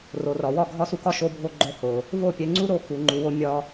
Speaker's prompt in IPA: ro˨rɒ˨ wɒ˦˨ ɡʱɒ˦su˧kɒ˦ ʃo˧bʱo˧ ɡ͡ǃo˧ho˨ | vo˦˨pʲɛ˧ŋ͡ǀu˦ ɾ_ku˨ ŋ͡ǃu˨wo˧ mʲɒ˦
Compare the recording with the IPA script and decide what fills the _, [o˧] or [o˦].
o˧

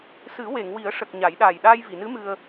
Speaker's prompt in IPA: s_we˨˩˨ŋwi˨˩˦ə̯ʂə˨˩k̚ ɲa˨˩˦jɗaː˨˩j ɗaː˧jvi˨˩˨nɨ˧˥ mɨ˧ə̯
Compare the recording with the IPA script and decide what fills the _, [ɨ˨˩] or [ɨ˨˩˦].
ɨ˨˩˦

